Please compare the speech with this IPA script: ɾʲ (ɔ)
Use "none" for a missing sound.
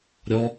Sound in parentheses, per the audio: ɔ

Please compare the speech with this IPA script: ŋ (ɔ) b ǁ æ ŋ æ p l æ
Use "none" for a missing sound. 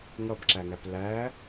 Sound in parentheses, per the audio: ʌ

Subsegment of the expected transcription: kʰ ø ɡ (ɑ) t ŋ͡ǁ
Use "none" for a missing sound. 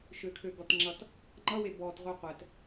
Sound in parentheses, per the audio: ɔ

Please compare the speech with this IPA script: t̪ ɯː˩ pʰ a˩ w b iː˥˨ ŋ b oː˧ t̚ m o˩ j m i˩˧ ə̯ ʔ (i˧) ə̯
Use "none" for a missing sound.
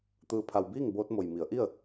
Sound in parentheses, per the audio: i˥˨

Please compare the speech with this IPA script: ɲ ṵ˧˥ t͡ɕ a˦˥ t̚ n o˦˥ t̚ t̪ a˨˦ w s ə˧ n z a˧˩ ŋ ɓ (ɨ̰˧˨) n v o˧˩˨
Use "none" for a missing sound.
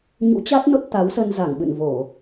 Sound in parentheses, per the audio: ɨ̰˧˨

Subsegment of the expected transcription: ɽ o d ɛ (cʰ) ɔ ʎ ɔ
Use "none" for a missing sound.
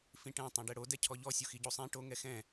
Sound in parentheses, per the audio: cʰ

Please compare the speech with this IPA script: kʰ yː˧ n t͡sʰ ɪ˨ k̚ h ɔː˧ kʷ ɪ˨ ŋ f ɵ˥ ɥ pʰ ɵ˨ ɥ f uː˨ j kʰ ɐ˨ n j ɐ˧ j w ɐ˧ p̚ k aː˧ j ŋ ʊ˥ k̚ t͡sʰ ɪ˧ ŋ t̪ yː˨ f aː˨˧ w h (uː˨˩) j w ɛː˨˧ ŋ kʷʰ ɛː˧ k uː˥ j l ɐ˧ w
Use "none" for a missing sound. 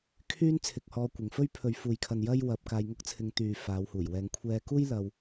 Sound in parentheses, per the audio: uː˨˩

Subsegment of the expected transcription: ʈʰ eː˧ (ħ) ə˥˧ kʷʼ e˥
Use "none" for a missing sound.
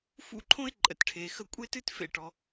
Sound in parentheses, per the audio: x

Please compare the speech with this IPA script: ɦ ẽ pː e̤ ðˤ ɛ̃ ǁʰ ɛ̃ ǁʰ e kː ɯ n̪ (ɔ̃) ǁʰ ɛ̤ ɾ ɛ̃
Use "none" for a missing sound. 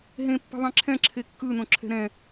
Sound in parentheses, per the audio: õ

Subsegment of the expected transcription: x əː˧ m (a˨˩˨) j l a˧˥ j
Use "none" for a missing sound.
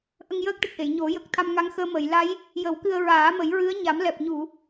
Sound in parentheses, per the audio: ə˨˩˨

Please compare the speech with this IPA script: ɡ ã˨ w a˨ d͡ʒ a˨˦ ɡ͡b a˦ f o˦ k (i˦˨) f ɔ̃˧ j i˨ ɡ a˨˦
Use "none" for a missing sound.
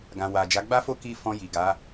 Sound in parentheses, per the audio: i˦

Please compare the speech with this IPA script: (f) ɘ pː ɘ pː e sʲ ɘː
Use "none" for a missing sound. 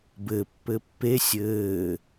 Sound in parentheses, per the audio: b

